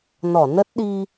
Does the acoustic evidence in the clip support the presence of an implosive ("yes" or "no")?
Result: yes